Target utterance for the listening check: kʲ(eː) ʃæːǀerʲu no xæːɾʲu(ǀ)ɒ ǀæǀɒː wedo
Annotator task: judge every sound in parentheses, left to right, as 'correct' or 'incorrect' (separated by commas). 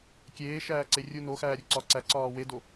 correct, correct